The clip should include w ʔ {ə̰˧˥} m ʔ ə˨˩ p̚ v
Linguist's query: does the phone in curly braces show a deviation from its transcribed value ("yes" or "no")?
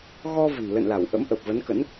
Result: no